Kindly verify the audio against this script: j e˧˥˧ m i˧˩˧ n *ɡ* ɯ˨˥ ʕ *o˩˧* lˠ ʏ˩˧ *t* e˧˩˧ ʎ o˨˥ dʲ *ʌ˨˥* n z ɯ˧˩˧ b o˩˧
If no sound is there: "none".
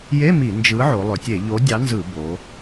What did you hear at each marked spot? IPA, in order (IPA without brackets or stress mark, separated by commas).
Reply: d͡ʒ, o˩˧, tʲ, ɑ˨˥